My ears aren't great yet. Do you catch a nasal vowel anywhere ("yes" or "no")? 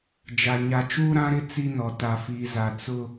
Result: yes